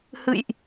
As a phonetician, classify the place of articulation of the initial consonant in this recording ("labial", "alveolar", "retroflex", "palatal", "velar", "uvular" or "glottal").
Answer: glottal